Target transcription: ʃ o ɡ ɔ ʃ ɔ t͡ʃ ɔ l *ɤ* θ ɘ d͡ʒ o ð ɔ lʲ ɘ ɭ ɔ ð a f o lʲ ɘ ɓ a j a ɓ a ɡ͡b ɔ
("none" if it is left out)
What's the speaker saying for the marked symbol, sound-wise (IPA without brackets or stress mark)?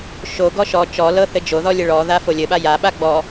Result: ɤ